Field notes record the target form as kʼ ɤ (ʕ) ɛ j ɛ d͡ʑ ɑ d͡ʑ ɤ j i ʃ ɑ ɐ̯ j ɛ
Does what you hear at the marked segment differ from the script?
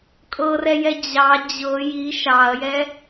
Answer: yes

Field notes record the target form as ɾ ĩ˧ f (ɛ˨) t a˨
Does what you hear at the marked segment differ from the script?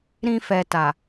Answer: no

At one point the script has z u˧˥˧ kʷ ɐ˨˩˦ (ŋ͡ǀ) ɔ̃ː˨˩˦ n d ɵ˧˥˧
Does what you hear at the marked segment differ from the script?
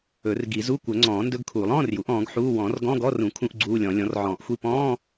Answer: no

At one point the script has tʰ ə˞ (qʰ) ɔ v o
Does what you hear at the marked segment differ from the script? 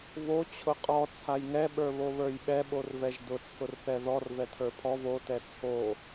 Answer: yes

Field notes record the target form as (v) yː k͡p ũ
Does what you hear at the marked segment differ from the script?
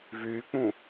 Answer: no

